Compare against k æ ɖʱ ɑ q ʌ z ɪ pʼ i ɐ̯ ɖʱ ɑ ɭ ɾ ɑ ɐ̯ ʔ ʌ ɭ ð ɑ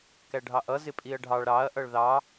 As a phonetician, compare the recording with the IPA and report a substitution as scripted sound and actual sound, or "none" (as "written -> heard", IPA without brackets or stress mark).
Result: q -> ʔ